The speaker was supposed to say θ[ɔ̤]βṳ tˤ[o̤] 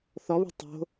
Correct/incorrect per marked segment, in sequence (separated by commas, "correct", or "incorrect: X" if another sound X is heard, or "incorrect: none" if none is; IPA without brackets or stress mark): incorrect: ɔ, correct